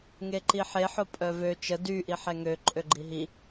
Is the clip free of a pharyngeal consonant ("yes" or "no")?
no